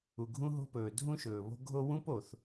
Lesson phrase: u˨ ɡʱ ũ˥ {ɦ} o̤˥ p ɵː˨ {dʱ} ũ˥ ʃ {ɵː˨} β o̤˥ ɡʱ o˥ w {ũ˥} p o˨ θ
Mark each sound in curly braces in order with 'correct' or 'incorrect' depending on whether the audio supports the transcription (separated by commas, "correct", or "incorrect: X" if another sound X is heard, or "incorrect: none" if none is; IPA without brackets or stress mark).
correct, correct, correct, correct